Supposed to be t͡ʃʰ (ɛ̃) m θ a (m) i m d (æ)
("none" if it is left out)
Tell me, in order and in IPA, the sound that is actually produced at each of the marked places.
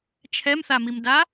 ɛ, m, a

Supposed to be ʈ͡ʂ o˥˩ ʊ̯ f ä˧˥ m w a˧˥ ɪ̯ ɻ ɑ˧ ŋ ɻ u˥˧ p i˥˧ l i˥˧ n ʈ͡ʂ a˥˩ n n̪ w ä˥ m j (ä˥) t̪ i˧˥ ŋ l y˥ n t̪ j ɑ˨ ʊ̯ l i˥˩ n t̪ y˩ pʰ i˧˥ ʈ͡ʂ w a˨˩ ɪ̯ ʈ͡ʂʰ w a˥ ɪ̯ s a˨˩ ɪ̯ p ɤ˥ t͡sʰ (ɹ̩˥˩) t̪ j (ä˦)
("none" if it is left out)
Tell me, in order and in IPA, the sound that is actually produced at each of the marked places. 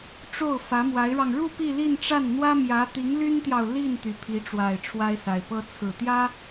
ä˧˥, ɹ̩˨˩, ä˥

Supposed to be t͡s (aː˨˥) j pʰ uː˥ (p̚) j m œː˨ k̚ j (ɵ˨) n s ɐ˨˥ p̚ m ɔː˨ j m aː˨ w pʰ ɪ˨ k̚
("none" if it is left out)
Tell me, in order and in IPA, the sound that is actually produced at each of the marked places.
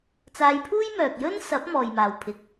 aː˧, none, ɵ˥

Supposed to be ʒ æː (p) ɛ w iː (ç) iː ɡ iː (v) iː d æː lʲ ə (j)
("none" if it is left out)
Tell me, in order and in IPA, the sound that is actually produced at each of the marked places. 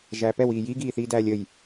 p, j, θ, j

